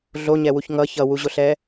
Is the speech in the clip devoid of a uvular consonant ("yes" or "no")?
yes